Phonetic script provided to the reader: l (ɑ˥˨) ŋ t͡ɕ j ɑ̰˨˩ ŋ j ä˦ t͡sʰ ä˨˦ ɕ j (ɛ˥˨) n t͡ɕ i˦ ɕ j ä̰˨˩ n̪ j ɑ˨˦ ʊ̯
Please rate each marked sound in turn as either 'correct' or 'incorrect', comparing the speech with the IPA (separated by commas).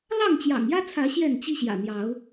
correct, correct